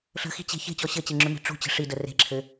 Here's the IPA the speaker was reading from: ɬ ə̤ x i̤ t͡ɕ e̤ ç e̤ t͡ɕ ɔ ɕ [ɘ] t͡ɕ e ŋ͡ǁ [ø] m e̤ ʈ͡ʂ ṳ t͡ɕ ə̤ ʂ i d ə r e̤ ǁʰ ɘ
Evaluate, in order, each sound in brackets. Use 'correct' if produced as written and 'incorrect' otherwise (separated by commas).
correct, correct